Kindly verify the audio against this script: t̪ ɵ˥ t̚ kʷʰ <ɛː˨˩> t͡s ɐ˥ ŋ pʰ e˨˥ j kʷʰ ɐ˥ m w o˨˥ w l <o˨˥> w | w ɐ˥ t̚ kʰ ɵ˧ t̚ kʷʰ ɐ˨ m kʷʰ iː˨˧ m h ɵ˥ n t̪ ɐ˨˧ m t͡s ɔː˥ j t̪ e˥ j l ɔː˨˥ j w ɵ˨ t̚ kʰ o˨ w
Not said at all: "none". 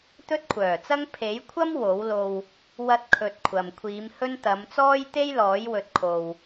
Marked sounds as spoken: œː˨˩, o˧

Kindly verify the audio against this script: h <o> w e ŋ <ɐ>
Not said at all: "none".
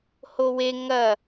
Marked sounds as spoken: o, ɐ

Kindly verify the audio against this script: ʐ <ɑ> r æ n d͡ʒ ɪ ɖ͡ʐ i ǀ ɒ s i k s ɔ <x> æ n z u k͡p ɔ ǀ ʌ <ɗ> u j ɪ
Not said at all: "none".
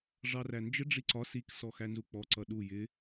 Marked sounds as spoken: ɑ, x, ɗ

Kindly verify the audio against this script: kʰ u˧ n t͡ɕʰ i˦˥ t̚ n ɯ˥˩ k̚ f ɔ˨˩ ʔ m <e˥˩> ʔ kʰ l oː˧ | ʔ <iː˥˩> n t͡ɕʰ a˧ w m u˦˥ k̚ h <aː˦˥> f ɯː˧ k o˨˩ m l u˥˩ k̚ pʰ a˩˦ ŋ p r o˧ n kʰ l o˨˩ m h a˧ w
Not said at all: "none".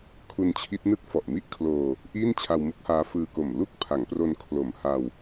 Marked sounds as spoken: i˥˩, iː˥˩, aː˦˥

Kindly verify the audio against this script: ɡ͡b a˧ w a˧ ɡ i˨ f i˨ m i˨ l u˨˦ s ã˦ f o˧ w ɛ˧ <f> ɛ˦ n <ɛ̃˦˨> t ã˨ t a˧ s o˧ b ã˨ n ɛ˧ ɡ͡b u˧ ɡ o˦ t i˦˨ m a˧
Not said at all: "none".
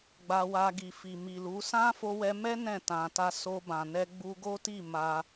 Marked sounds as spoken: m, ɛ̃˦˨

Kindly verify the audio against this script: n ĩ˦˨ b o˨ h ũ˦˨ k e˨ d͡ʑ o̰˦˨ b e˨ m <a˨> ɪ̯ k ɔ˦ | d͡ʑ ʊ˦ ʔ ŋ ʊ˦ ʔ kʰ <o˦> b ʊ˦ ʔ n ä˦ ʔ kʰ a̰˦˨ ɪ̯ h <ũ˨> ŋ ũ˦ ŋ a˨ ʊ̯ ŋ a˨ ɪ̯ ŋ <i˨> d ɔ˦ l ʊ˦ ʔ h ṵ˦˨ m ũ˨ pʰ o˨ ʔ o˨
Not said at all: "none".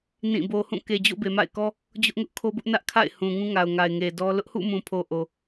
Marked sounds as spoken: a̰˦˨, o˦, ũ˨, e˨

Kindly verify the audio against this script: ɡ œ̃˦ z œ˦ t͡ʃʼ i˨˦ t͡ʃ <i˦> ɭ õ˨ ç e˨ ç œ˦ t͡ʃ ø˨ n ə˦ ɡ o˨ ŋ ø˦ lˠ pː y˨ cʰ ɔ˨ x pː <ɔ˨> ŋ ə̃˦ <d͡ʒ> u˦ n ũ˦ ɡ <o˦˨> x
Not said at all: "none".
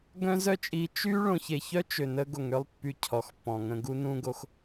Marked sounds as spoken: y˦, ɔ̃˨, ɡ, o˦

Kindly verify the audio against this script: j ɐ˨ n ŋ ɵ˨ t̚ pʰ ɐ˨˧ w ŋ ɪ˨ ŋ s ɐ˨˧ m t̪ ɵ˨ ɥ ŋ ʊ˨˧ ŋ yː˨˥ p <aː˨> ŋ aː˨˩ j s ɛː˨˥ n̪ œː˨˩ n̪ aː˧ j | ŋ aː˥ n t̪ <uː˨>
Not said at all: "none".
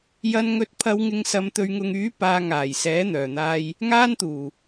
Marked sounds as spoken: aː˨, uː˨˩

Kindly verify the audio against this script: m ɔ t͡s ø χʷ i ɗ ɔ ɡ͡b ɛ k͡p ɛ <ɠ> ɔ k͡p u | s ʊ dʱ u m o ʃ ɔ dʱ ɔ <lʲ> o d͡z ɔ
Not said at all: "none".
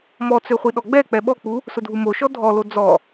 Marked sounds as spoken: ɓ, l

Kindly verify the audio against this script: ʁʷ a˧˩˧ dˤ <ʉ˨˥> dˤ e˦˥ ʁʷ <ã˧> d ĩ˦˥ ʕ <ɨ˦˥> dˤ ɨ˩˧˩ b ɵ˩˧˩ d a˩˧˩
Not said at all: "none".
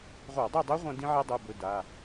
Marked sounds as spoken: ʉ˥˨, ã˧, e˦˥

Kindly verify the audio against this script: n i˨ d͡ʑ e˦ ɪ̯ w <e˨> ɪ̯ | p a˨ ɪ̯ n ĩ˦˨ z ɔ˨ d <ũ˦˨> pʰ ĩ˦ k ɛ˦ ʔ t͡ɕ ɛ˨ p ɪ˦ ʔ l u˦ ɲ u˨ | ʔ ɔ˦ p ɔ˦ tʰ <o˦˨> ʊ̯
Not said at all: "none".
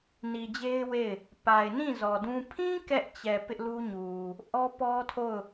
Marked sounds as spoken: e˦˨, ũ˦, o˦˨

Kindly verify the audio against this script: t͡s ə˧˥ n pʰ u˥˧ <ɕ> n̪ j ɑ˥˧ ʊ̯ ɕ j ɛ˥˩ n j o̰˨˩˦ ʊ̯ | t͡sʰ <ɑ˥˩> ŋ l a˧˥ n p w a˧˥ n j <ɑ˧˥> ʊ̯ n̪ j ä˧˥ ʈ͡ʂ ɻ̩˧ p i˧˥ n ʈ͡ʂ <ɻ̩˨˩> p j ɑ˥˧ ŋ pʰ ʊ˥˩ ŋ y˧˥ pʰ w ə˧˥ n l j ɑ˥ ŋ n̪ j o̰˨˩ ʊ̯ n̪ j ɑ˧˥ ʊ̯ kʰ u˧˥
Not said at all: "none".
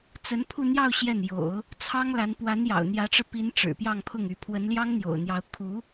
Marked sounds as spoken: none, ɑ˥, ɑ̰˨˩, ɻ̩˨˩

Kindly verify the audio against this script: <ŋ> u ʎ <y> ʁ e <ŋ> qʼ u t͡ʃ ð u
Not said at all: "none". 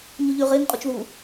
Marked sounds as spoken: ɲ, y, ŋ

